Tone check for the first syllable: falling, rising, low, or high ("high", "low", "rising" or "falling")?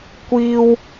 high